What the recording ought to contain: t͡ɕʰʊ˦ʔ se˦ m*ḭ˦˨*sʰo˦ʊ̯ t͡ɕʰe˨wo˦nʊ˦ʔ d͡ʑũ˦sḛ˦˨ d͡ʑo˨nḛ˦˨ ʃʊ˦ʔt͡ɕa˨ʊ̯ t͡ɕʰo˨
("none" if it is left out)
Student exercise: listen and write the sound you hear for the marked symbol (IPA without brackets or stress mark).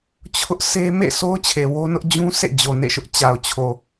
ḛ˦˨